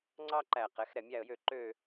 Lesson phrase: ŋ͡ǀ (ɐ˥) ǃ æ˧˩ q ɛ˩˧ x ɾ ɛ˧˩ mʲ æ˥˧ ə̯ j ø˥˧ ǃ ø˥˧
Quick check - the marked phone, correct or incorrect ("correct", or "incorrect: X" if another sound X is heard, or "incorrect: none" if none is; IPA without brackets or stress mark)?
incorrect: ɑ˥